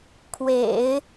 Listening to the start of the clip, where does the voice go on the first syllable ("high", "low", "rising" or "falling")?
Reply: low